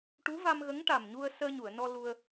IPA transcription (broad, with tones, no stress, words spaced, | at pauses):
ʈu˧˥va˧mɣə˧˥ŋ ʈa˨˩mɲu˧ə̯ səː˧ɲu˨˩˨ə̯nɔ˧ lu˧ə̯